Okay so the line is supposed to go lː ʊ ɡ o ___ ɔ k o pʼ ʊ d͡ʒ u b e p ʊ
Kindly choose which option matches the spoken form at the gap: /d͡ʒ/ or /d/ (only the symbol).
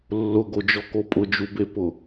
d͡ʒ